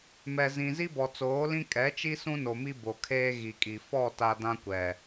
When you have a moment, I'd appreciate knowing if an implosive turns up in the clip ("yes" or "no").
no